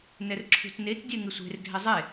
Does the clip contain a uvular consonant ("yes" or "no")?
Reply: no